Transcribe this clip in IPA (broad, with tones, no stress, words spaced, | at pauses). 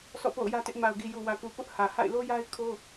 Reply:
sɔ̰˦˨po̰˦˨ʊ̯jä˦tɪ˦ʔ ma˨ʊ̯ɡi˨ ju˨wä˨ku˨ pʊ˦ʔhä˨ha̰˦˨ɪ̯ lo˦ja˦ɪ̯kʰo˦